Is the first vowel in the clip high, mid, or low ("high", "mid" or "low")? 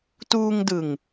high